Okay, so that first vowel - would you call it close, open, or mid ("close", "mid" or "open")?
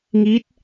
close